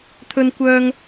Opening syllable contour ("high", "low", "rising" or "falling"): high